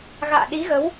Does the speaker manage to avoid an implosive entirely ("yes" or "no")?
no